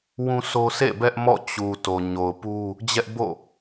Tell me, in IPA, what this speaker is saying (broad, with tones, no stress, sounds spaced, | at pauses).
w ũ˦ s o˦ s ḛ˦˨ b ɛ˦ ʔ m ɔ̰˦˨ t͡ɕ u˨ t o˨ ɲ o˨ ʊ̯ p u˦ | d͡ʑ ɛ˦ ʔ b o̰˦˨